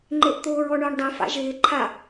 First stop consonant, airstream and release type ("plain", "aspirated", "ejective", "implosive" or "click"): click